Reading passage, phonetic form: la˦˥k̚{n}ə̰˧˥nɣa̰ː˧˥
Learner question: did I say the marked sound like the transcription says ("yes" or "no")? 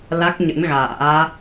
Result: no